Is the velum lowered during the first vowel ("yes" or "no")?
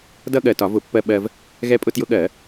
no